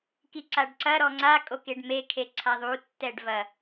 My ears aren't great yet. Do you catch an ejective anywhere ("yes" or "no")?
yes